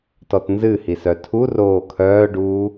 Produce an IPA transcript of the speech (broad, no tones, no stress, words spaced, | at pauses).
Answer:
tɔtnzɨ hisœtʰu roːkʰœːɖuː